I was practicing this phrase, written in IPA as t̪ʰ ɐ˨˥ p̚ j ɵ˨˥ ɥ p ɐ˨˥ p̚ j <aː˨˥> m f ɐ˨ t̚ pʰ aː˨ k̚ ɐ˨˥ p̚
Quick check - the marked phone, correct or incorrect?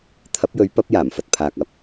incorrect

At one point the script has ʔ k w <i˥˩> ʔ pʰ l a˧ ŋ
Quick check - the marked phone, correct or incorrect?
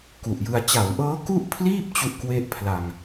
incorrect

